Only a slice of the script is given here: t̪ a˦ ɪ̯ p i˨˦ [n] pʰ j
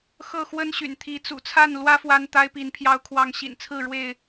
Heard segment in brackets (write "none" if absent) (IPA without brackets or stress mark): n